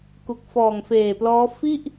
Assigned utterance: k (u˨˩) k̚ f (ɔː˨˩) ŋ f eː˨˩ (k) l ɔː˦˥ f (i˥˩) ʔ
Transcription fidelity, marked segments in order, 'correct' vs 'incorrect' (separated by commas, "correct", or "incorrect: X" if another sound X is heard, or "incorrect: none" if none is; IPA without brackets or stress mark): correct, correct, incorrect: p, correct